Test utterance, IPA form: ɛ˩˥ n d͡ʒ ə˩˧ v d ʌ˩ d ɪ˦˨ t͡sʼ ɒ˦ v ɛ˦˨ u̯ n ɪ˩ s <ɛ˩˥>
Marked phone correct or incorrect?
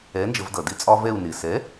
correct